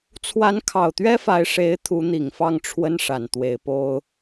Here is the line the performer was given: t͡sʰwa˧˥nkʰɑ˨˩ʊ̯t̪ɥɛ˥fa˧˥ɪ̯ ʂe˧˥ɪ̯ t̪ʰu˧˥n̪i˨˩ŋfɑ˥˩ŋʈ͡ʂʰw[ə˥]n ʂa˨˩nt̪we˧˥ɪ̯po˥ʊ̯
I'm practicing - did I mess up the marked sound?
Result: no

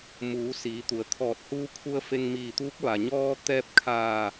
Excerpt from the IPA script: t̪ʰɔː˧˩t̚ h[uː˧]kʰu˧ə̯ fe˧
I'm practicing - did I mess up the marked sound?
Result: no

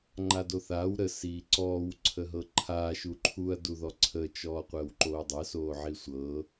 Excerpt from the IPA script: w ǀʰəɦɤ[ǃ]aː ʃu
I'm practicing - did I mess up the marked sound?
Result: yes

